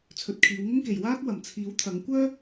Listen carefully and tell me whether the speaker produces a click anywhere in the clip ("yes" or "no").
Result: no